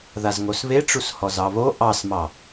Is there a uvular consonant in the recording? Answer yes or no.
no